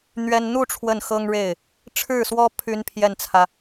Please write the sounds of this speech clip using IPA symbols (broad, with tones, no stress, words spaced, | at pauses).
n̪ɥɛ˥n n̪u˥˧ ʈ͡ʂʰwə˥˩nxɤ˥ŋɻe˥˩ɪ̯ | ʈ͡ʂʰɻ̩˥˩swɔ˥ pʰy˥npʰjɛ˥˩nt͡sʰä˩